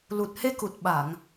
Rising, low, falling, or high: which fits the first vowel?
low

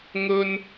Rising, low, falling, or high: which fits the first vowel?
high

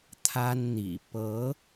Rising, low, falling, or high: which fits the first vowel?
high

